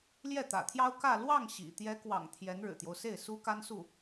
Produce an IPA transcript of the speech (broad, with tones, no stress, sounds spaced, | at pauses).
l j ɛ˥˩ t̪ ä̰˨˩ t̪ʰ j ɑ˥ ʊ̯ k ä˥˧ l w ɑ˥˩ ŋ ɕ ḭ˨˩ t̪ j ɛ˧˥ k w ɑ̰˨˩ ŋ t̪ʰ j ɛ˧˥ n ɻ ɻ̩˨˩ t̪ j o˦ ʊ̯ s e˥˩ ɪ̯ s u˥ k a˥ n s u˥˩